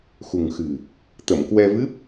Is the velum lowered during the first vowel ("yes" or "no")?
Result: no